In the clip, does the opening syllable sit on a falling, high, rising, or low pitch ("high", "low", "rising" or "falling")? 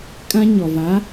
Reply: high